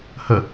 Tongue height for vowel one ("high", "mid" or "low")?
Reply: mid